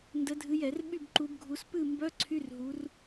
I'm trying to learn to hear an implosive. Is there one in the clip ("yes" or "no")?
yes